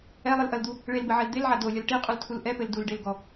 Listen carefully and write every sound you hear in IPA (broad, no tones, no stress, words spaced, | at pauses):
ɛlˠɨlʔɐld̪u | ɭelbɘʕɛl d̪elʕa dolʲɐl ʈiqʼultʰul ʔɛpɘl dulɖelɡɔ